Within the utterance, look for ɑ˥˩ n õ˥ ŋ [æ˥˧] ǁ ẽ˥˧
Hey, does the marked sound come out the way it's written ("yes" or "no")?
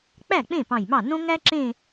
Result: no